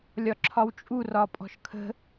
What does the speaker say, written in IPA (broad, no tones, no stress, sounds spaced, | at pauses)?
lʲ ɒ ǁʰ ɒ w t͡ʃʼ u r ɒ pʼ ɔ̤ ʃ kʰ ə̤